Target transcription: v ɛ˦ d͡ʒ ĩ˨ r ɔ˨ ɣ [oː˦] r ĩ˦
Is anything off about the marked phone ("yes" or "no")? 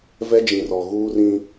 yes